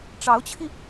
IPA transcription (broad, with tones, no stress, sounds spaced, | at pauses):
ʈ͡ʂ ɑ˧˥ ʊ̯ t͡ɕʰ i˧